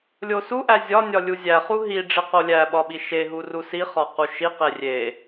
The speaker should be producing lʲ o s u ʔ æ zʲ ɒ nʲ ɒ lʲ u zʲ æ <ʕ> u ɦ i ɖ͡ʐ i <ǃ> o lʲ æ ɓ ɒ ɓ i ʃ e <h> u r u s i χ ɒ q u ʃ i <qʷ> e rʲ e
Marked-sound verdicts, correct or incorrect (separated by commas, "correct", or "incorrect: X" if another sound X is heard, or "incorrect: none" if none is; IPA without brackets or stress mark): incorrect: χ, incorrect: q, incorrect: ɦ, incorrect: q